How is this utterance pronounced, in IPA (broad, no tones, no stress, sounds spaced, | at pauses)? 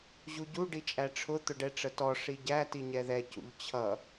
ʑ u ɟ u ɖ i t͡ʃʼ æ ʈ͡ʂʰ ʊ t̪ ʊ ɖ ɛ ʈ͡ʂ ə t ɔ ʂ i ɟ æ t i ɲ ɛ ð ɛ c ṵ ʎ t͡ɕʰ ʌ